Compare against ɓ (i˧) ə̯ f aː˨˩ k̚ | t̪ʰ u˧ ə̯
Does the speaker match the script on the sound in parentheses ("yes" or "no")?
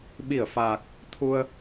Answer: no